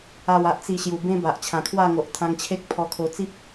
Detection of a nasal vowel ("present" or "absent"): present